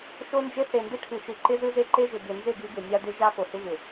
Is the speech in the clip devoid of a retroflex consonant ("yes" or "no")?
no